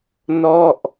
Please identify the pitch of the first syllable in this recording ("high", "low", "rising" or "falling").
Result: falling